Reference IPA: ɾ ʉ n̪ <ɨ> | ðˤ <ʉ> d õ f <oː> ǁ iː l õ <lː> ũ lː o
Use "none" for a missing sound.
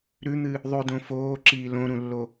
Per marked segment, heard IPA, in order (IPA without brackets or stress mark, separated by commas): ɨ, ʉ, oː, ɾ